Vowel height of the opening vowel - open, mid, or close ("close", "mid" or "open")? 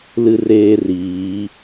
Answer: close